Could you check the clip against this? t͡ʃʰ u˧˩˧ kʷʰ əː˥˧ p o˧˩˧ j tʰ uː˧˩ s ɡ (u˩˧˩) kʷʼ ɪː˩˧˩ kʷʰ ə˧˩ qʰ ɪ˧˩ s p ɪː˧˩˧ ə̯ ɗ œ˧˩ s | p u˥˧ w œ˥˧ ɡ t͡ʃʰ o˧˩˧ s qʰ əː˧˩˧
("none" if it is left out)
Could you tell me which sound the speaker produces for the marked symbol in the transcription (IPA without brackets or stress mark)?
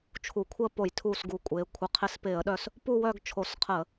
u˩˧˩